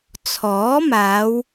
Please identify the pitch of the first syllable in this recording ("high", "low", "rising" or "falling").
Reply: rising